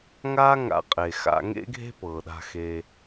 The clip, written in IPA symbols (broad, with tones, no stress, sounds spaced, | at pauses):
ŋ aː˥ ŋ a̰˧ qʼ e˩ x a̰˧ ŋ ḛ˥ ɡʱ e̤˥ p ɤː˩ ɗ a̤˧ x e˧